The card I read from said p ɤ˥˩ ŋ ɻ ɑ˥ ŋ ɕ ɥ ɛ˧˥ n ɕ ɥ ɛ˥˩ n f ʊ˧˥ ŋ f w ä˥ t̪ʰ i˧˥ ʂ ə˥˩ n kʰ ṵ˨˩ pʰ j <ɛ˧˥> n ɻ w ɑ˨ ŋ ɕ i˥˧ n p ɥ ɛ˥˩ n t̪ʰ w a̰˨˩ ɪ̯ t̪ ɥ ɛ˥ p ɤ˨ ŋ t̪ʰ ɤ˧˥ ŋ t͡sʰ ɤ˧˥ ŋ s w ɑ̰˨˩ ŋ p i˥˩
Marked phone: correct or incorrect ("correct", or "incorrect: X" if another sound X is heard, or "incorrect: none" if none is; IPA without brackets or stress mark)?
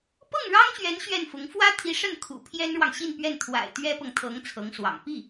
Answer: incorrect: ɛ˥